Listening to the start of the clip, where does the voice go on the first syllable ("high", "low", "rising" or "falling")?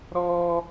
high